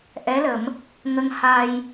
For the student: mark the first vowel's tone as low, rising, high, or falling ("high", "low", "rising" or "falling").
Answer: rising